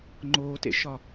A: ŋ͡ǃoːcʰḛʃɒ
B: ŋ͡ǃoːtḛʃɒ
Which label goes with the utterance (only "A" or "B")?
B